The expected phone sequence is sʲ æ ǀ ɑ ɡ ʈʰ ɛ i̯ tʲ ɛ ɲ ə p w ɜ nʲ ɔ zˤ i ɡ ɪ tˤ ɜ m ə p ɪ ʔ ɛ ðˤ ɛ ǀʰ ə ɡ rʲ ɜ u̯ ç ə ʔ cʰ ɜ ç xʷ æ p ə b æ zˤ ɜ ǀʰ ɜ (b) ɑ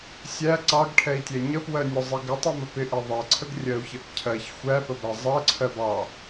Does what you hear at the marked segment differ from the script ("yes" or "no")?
no